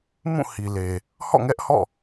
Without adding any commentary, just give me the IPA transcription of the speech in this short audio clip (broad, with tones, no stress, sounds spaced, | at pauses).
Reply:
m ũ˦˨ h i˨ l e˨ | h ɔ̰˦˨ ŋ ɛ˦ ʔ h ɔ̰˦˨